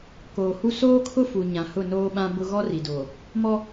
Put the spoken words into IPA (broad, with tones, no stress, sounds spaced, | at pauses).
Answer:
k oː˨ h u˦ s oː˦ kʰ ʊ˦ f u˨ ɲ ã˨ h ʊ˦˨ n oː˦ ɓ ã˦ b ʊ˦ ɣ ɔ˦ r i˨ d oː˨ | m ɔ˦